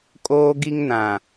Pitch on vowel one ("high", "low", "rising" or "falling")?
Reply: high